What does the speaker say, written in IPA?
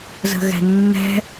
z ə̤ ɣ ɛ̤ nː ɛ̤

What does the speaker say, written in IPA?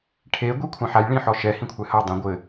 ʈʰ e ɡʷ i kʷʰ ã ħ a j ɭ ĩ ħ ɔ ʃ ɛ h ĩ kʷʰ ɛ h ɐ dˤ ẽ ɡʷ ɘ

